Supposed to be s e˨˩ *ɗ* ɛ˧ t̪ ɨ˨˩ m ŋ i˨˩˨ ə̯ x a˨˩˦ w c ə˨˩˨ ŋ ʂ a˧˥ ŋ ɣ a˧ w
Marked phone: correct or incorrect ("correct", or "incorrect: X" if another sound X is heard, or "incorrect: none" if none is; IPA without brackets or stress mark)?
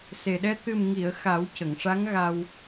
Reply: correct